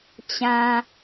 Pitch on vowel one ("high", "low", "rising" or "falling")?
low